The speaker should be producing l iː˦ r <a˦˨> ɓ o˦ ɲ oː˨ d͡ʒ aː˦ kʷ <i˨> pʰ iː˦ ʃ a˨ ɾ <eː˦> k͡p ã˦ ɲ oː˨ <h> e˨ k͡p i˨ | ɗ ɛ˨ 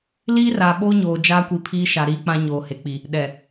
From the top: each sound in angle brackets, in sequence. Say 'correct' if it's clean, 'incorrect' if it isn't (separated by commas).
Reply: incorrect, correct, incorrect, correct